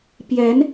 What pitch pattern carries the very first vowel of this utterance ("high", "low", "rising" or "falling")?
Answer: rising